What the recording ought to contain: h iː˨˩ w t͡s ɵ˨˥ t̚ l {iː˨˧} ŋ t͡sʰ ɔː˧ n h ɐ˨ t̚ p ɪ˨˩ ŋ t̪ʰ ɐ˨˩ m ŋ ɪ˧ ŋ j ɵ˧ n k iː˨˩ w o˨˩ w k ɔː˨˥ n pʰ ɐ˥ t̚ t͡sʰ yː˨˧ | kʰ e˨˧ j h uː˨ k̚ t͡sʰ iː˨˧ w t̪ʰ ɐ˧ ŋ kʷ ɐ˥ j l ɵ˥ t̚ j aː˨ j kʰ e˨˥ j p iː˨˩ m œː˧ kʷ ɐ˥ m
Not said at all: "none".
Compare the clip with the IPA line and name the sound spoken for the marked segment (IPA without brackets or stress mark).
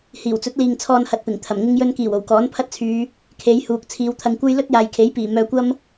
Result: iː˨